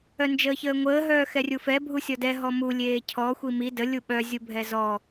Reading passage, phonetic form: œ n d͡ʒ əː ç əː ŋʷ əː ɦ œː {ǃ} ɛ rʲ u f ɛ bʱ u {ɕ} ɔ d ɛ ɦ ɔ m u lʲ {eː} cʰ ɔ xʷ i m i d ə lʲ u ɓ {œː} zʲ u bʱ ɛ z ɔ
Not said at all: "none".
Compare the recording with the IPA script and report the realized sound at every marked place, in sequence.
x, sʲ, eː, œ

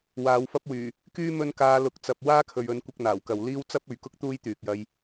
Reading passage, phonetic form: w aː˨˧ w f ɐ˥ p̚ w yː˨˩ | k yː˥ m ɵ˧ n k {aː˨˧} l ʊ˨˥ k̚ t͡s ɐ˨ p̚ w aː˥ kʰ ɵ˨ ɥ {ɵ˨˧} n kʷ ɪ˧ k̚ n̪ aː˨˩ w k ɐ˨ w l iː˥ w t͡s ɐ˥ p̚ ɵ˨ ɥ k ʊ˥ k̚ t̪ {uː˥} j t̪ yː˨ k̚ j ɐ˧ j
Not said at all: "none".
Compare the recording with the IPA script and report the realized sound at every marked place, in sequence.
aː˨˧, ɵ˨˧, uː˥

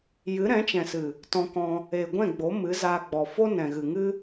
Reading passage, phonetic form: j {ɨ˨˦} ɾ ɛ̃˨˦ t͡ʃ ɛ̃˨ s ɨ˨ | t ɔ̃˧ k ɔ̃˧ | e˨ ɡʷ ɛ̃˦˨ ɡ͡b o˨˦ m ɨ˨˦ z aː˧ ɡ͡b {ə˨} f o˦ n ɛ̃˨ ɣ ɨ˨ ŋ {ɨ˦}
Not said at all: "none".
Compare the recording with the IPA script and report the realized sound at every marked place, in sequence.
ɨ˨˦, ɔ˨, ɨ˦

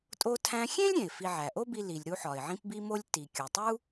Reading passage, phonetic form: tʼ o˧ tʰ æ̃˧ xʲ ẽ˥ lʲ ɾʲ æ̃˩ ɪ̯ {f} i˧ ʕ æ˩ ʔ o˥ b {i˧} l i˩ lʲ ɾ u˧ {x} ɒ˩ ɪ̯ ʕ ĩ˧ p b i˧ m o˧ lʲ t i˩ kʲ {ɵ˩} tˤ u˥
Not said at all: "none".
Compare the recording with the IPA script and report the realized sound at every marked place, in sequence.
f, i˧, ħ, o˩

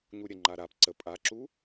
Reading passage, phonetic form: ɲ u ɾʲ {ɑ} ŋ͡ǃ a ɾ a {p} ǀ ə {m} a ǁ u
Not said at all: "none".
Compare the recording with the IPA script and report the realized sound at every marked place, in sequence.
ə, p, pʼ

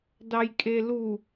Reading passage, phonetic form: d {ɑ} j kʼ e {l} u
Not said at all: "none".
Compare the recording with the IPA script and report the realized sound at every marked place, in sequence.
ɑ, l

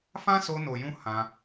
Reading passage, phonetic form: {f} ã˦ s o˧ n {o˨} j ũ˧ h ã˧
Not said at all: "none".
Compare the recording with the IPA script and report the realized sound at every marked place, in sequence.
f, o˨

